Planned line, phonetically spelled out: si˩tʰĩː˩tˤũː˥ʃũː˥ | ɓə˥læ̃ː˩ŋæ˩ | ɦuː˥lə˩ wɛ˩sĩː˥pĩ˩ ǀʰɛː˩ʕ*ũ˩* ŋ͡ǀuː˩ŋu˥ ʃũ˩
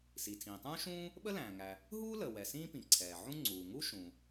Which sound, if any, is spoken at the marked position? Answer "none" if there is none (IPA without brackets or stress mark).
ũ˥